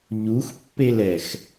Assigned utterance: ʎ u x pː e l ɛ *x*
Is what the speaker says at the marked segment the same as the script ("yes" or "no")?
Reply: yes